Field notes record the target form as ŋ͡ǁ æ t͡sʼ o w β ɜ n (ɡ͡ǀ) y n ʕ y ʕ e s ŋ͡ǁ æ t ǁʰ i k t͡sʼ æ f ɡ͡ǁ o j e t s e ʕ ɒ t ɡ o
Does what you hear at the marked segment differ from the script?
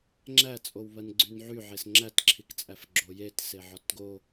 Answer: no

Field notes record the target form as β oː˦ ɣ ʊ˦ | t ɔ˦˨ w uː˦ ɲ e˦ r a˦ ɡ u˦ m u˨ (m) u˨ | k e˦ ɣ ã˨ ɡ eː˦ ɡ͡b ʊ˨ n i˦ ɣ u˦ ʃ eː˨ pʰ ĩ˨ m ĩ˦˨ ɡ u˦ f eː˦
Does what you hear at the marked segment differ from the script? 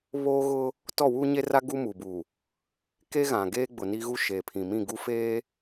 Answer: yes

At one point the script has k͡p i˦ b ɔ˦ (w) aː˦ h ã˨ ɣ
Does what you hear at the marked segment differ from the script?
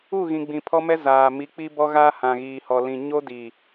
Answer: yes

